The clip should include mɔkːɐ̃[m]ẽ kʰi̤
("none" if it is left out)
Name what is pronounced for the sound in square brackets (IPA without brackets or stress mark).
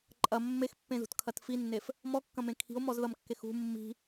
m